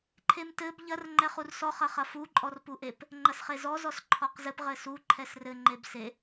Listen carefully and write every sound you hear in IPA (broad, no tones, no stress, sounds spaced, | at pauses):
ǃʰ e m t ɘ b ʎ ɐ r ŋ͡ǃ ɛ χ u r s ɔ χ ɐ χ ɐ f u ǃʼ ɔ r p u ʔ e p | ŋ͡ǃ ɐ s χ e z ɔ z ɔ s ǃʰ ɔ q z ɘ p ʁ ɘ s u ǃʰ ɛ s r ɘ ŋ͡ǃ e b s e